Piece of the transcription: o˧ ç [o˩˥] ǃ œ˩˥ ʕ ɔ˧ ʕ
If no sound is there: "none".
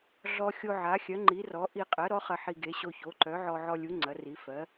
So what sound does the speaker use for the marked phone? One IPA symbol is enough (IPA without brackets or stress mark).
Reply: o˩˥